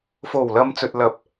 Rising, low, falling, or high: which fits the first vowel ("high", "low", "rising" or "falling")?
low